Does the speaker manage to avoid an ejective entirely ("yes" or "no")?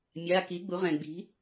yes